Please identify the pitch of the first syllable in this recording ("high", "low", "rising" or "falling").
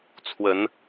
rising